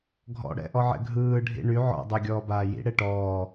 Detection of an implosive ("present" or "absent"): absent